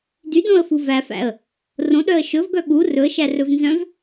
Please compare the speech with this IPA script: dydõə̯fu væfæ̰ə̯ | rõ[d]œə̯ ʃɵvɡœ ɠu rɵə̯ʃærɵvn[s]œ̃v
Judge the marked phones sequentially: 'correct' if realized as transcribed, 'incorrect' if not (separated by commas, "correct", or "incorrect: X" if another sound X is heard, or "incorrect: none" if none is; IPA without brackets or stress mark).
incorrect: ɗ, incorrect: z